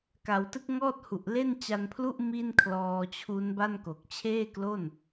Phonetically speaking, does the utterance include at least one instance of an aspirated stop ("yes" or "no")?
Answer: yes